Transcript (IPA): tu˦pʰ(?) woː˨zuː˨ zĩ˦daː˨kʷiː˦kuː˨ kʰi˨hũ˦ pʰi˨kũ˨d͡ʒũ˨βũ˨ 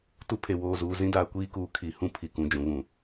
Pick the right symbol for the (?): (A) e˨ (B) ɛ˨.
A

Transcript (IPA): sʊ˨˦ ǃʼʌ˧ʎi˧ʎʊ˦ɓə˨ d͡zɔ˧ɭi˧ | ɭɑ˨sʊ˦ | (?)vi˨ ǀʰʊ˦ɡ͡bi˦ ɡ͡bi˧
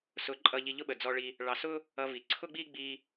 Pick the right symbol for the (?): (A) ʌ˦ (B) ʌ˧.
B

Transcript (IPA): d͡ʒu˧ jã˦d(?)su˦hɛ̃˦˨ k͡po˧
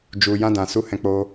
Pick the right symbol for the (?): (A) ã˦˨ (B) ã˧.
B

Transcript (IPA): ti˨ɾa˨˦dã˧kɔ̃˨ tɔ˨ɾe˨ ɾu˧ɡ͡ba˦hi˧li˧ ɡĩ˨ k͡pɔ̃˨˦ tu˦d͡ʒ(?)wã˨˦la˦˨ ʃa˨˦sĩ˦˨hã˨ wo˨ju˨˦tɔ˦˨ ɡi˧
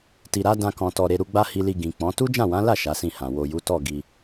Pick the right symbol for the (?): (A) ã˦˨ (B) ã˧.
A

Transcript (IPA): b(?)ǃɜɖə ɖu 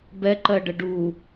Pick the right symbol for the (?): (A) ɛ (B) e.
A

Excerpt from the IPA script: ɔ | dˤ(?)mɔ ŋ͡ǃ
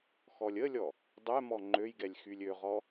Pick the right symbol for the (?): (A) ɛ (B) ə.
A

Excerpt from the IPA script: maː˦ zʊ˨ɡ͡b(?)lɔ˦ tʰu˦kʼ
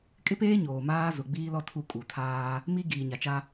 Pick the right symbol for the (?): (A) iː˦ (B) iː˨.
A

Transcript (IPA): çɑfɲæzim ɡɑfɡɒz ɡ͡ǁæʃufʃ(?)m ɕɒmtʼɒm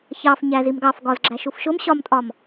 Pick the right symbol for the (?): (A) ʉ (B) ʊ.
B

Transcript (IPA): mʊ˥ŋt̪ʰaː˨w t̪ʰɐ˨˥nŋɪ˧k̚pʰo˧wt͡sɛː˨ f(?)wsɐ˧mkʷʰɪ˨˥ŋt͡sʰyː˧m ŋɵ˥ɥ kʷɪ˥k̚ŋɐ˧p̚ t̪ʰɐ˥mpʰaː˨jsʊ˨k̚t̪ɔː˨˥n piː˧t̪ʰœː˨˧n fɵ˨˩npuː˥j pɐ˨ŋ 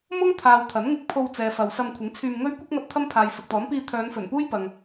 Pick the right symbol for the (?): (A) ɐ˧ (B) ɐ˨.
B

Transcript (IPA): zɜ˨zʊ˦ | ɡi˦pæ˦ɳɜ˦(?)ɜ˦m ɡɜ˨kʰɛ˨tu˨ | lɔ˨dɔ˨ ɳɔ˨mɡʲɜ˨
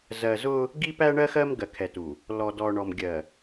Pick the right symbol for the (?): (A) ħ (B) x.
B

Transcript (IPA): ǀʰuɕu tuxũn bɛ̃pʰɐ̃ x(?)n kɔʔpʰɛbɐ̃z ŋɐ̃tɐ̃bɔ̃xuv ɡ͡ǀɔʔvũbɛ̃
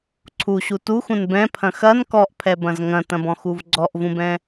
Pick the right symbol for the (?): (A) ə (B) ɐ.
B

